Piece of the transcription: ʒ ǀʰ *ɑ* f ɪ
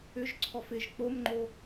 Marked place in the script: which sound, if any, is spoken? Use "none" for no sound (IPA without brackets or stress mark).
ɔ